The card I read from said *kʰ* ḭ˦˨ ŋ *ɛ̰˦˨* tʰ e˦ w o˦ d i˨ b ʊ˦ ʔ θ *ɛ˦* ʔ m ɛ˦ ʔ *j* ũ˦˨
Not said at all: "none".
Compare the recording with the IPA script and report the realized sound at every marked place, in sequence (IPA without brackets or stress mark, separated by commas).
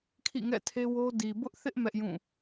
kʰ, ɛ̰˦˨, ɪ˦, j